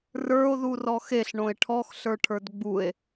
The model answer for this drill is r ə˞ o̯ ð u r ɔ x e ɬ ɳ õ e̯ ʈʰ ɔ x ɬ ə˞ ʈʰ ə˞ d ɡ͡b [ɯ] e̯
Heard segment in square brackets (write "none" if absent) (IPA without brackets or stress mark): u